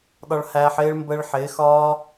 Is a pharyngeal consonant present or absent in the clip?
present